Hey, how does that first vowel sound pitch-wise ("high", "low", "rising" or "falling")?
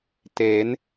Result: rising